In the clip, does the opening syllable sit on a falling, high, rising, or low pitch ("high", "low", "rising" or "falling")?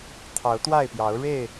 rising